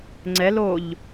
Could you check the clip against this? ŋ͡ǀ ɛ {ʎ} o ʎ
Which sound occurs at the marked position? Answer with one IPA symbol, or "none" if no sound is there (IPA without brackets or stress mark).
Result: l